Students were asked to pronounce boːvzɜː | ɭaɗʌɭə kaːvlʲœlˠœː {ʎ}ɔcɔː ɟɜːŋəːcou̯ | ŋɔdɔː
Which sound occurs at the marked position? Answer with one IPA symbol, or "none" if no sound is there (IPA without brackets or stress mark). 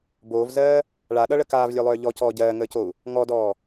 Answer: ʎ